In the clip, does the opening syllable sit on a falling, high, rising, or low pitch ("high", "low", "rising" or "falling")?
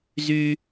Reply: high